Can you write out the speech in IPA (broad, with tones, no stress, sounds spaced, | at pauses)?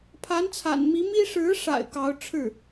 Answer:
pʰ a˧˥ n t͡sʰ a̰˨˩ n m i˧˥ m i˥ ʂ ɻ̩˧˥ ʂ a̰˨˩ ɪ̯ k ɑ˧˥ ʊ̯ ʈ͡ʂʰ ɻ̩˥˩